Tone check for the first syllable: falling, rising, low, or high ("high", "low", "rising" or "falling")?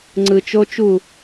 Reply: low